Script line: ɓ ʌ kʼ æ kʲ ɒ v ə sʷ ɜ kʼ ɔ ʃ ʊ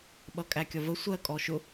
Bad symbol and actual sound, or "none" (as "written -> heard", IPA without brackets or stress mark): none